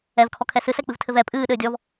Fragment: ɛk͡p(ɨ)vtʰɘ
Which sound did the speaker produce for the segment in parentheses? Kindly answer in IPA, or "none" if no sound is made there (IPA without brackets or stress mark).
ɨ